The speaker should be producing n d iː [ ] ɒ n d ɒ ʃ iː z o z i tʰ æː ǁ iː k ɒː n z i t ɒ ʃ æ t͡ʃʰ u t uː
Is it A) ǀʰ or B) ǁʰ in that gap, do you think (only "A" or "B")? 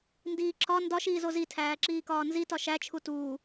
B